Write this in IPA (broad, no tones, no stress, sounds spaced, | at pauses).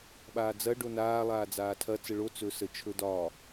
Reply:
ɓ aː d͡z ɐ ɖ o n aː lˠ aː d͡z aː tʰ ɐ t͡s ə ɭ o t͡s ɵ s ə t͡ʃʰ ɵ d ɒː